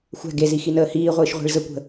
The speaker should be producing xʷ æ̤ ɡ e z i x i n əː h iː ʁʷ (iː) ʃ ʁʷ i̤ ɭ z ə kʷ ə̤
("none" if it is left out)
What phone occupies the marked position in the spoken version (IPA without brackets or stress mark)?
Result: ɨː